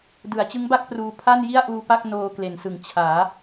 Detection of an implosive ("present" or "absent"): absent